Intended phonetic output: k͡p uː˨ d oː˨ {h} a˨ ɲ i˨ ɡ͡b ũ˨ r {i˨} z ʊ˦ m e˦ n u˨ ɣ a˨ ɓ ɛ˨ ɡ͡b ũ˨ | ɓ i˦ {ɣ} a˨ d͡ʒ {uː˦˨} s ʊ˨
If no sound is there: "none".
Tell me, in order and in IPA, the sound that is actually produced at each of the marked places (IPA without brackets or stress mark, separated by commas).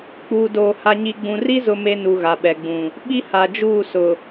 h, i˦, h, uː˦˨